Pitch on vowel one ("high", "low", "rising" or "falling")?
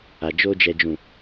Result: low